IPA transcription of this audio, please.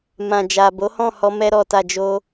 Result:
m ã˨ d͡ʒ a˨ b o˨˦ h ɔ̃˦˨ h ɔ˧ m ɛ˧ ɾ ɔ˨ t a˨ d͡ʒ o˧

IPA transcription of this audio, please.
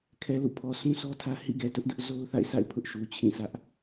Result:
kʰ ɛ˨ l ṵ˦˨ pʰ ɔ˨ s ũ˦ sʰ ɔ˦ tʰ ä˦ h ḭ˦˨ ɡ ɛ˨ t ʊ˦ ʔ d ʊ˦ ʔ z o˦ ʊ̯ θ a̰˦˨ ɪ̯ s a̰˦˨ ɪ̯ pʰ ʊ˦ ʔ ʃ u˨ t͡ɕʰ ĩ˦˨ s ä˦ ʔ

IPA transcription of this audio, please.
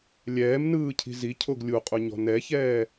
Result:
lʲ ɛː m n ɯː cʰ i̤ z i cʰ o ɡ lʲ u qʼ u ɲ ɔ̤ n ɛ ç ɛː

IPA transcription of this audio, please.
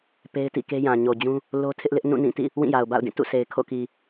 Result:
p e˦ ɪ̯ t ḭ˦˨ k e˦ j ã˨ ɲ o˨ d͡ʑ ũ˦ | l o˦ tʰ ɪ˦ ʔ l ɪ˦ ʔ n ũ˦˨ n ĩ˦˨ t ḭ˦˨ | w ĩ˦˨ j a˨ ʊ̯ b a̰˦˨ ʊ̯ d ĩ˦˨ t ṵ˦˨ sʰ e˨ ɪ̯ kʰ o̰˦˨ k i˨

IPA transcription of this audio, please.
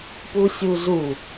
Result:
p u sʲ u z u

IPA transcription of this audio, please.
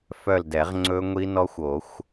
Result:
f œ˦˨ l d ɛ˨˩˦ ʁ ŋ͡ǀ ɵ˦˥ ŋʷ i˦˥ n ɔ˦˥ xʷ o˨˩˦ xʷ

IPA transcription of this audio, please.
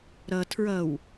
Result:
ɾ ʌ tʰ ɹ ʌ w

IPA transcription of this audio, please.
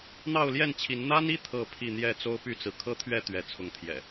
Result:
n̪ ɑ˥˨ ʊ̯ l j ɛ˥˨ n t͡ɕʰ i˨˦ n n̪ a˦ n i˦ t̪ʰ ɤ˥˨ pʰ i˥˨ n̪ j ɛ˥˨ t͡s o˦ ʊ̯ p y˥˨ t͡s ɹ̩˩ kʰ ɤ˦ t̪ʰ ɥ ɛ˥˨ t̪ ɥ ɛ˨˦ t͡sʰ ʊ˨˦ ŋ t̪ʰ j ɛ̰˨˩

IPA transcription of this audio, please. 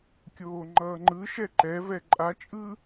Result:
kʲ oː ŋ͡ǃ ʌː ŋ͡ǃ ɯ ʃ ɛ ǃ ɛ v ɛ ǃʼ a t͡ʃʼ ɯ

